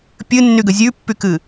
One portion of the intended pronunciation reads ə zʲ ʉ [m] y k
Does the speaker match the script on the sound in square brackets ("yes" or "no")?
no